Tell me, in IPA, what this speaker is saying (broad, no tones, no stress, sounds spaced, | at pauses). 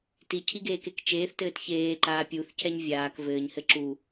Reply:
t i cʰ i ɡ eː k e k t͡ʃ eː θ t ɘː t ç eː ǃ aː pʲ u θ c ɛ ɲ vʲ aː k v ɘː ɲ h ɘ ǁ u